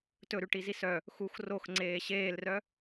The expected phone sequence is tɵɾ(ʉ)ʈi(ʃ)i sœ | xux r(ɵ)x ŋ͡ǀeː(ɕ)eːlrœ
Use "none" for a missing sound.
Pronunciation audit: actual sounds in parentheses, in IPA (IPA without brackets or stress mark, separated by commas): ʉ, z, o, ɕ